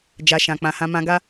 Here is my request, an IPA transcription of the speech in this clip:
d͡ʒa˧ʃã˨ k͡pã˨hã˧ mã˧ɡa˦

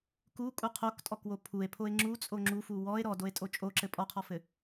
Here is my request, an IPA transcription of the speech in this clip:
kukʼu qʰoktʼɔkwo pʰue̯pʰoe̯ ŋ͡ǁut͡sʼo ŋ͡ǁufu wɔe̯ ɾɔdoe̯tʼo t͡ʃʼoǁɘ pʼɔqʰɔfɘ

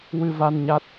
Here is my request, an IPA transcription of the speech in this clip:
wɨ˧va˧nɲa˦˥t̚

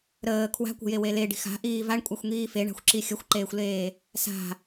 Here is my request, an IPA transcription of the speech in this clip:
ɾəː kʰwa̤kʷə̤jewe leɖi̤x a̤ʔiː vaɳkʷʼaxʷŋiː feɳa̤xʷǁi xʲəxʷǃeːxʷleː | sa̤

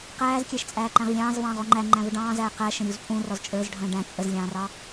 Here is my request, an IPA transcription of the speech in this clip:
qæːzkʲæʃt͡sʼæːǃæ̃ʁ lʲɑ̃ːzvɑ̃ːʁɔ ŋ͡ǃæŋ͡ǃæ̃ vəɖɑ̃ːzæː qæʃə̃ ɾʲuzpʼũ rɔzt͡ʃʼə˞zɖʱə̃ː ɖæ̃ t͡sʼəzlʲɑ̃ːrɑ

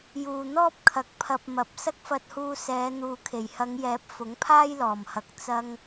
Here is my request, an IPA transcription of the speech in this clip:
juː˨n̪ɔː˥p̚kʰɐ˨k̚ pʰɐ˧p̚ mɐ˨˥p̚ sɐ˥k̚fɐ˧t̚huː˧ sɛː˨˧ n̪uː˨kʰe˨˩jhɐ˨˧ŋjɛː˨˥p̚ fʊ˨˥ŋpʰaː˥jlɔː˨˩mhɐ˨k̚ t͡sɐ˥ŋ

